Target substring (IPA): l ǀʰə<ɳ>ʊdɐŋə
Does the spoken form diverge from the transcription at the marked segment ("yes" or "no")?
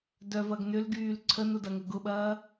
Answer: yes